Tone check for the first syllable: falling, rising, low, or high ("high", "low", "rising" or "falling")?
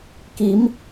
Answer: rising